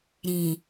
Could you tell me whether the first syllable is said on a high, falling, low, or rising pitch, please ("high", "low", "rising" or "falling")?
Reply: low